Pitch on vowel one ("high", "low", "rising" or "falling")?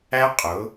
high